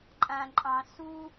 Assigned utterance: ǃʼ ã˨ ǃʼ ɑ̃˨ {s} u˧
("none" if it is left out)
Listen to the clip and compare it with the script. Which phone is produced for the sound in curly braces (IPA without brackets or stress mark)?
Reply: s